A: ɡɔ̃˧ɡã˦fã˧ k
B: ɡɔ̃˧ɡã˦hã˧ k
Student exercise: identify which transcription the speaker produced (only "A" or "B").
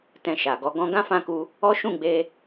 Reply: A